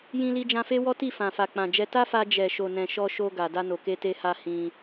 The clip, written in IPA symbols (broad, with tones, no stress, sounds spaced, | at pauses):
j ĩ˧ l i˧ d͡ʒ ã˧ f e˦ w ɔ˦ t i˦˨ f ã˨ f a˨ k͡p ã˨ d͡ʒ ɛ˧ t a˦ f a˧ d͡ʒ ɛ˨ ʃ o˨ n ɛ̃˨ ʃ ɔ˧ ʃ o˧ ɡ a˨ d a˧ n o˨ k e˧ t e˧ h a˧ h ĩ˧